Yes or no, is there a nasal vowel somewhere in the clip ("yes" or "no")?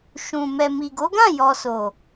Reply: yes